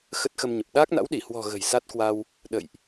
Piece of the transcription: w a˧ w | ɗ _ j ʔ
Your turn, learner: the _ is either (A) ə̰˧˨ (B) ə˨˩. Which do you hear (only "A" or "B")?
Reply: A